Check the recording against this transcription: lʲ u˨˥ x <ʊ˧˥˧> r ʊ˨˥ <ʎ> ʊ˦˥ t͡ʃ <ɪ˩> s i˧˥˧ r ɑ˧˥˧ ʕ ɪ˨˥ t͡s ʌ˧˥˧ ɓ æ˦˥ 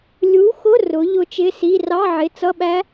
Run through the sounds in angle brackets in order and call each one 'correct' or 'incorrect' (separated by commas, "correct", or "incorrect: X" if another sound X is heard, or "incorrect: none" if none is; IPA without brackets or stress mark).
correct, correct, incorrect: ɪ˧˥˧